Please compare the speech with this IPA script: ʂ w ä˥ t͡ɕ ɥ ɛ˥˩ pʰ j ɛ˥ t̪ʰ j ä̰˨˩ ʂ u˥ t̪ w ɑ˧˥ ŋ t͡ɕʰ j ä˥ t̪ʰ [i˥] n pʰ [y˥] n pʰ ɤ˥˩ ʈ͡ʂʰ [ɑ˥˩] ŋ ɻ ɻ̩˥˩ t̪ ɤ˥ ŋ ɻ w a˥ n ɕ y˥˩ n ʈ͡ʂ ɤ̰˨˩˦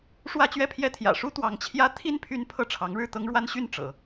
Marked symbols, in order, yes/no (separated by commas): yes, yes, no